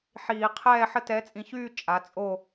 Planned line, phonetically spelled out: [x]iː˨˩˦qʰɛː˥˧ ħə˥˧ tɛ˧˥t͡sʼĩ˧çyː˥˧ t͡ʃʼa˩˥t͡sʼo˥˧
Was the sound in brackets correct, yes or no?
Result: no